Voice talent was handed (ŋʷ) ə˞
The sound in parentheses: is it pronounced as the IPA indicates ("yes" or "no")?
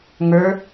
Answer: no